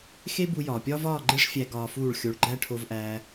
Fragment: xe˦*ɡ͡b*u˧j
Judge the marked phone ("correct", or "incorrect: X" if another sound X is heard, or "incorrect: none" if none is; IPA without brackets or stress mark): incorrect: b